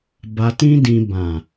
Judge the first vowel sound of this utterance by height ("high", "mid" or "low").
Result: low